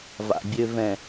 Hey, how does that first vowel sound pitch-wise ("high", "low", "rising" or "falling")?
low